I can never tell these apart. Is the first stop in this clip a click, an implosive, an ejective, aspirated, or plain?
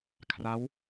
aspirated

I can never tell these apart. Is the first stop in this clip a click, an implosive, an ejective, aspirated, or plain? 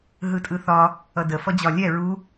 ejective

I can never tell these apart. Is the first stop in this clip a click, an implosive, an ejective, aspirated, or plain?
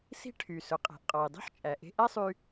aspirated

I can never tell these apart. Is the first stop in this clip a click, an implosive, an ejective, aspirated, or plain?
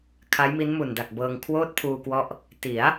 aspirated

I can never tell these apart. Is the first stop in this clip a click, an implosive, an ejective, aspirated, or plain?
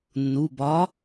plain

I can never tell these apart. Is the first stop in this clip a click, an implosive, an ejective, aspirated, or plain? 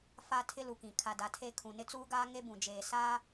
aspirated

